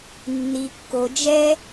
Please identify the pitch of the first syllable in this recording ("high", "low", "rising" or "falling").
low